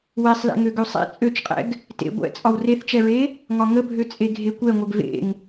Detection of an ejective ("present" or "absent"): present